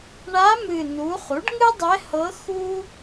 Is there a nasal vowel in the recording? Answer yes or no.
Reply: no